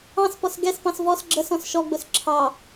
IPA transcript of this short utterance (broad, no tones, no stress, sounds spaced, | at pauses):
ɑ̃ s p ɔ s ɡ ɛ s p ɑ̃ s v ɔ s ɡ͡ǁ ə s ɔ̃ s ʃ ɔ ɡ͡b ʊ s ǁʰ ɑ